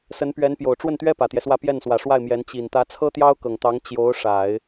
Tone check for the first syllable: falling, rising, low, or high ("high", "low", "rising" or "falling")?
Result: rising